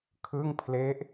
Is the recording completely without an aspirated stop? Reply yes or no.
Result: no